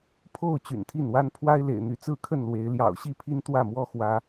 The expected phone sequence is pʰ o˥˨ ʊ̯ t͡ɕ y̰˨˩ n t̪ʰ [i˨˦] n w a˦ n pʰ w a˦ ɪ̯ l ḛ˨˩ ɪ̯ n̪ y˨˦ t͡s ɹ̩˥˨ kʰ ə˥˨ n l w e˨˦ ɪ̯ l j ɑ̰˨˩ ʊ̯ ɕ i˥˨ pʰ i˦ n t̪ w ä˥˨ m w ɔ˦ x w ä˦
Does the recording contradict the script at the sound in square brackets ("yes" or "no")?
yes